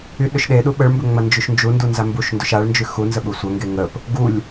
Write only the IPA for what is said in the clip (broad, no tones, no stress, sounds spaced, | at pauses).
y ɗ ʏ ʃ ɗ e ɗ u ɓ ə ɭ m b ʏ ŋ͡m ɐ n d͡ʒ y ʃ n d͡ʒ u n d u n z a m b u ʃ n d ʏ ʃ a ɭ n d͡ʒ y x u n z ə ɓ u sʷ ɐ ŋ ɡ e ŋ ə p | ɡ u lʲ